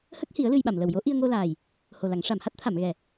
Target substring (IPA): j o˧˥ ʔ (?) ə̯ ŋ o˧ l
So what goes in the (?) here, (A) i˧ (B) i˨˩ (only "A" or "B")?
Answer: A